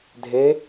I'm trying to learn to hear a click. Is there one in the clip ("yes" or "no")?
no